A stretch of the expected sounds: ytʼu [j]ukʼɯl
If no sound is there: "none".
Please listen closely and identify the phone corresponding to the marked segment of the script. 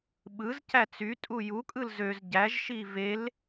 j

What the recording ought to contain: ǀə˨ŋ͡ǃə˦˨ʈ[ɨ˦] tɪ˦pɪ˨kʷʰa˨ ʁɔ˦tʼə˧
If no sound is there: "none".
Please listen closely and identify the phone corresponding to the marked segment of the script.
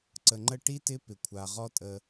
i˦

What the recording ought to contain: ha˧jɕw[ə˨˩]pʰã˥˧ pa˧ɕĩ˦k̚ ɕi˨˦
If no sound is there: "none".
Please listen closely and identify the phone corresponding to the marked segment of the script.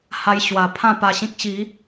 a˨˩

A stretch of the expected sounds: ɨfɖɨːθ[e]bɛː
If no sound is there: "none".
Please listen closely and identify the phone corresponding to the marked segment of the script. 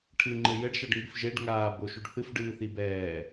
i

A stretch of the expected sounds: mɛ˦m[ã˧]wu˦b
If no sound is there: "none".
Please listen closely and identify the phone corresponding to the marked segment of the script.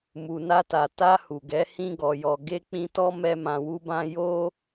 ã˧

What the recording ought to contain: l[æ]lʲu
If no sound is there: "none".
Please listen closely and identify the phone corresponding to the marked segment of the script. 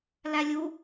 æ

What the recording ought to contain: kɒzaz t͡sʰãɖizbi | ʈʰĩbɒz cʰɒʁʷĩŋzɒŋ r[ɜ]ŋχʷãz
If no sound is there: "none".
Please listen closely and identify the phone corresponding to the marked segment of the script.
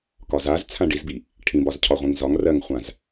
ɜ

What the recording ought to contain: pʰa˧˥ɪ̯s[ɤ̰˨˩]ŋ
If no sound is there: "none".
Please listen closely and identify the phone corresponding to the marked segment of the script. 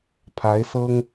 ɤ˥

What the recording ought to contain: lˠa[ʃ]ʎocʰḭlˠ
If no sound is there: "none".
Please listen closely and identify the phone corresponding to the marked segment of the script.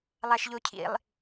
ʃ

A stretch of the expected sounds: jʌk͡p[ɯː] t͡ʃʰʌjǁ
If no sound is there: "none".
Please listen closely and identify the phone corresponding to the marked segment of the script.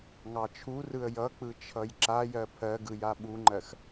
ɯ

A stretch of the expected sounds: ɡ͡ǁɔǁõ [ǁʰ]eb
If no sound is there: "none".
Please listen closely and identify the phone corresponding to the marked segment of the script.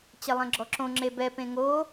ŋ͡ǁ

